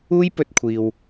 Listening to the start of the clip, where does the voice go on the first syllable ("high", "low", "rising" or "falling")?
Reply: high